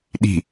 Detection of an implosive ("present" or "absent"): present